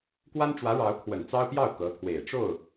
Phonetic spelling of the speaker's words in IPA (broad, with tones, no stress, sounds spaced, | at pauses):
k w a˥ n ʈ͡ʂ w ä˧˥ ɻ ɑ˧˥ ʊ̯ kʰ w ə˨˩ n t͡s ɑ˥ ʊ̯ p j ɑ˥˩ ʊ̯ k ɤ˧˥ t̪ʰ w e˨˩ ɪ̯ ʈ͡ʂ o˥˩ ʊ̯